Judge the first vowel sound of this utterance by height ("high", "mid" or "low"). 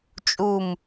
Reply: high